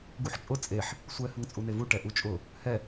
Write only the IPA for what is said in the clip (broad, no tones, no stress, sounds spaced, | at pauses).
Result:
ɡ u ħ t͡ʃʼ ʊ t͡sʼ e ħ | sʷ ɛ h ə ŋ t͡sʼ u n e v u ʈ ɛ ʔ u t͡ʃʼ ʊ | h ɛ